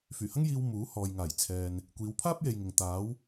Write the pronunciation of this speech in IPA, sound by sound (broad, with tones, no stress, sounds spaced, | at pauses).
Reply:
f yː˨˩ h ɐ˥ ŋ j iː˧ w m uː˨˥ h ɔː˨ j ŋ aː˨˩ j t͡sʰ ɛː˨ n | kʷ iː˨˧ w pʰ aː˥ p̚ j e˨ j ŋ ɪ˨ ŋ t̪ aː˨˧ w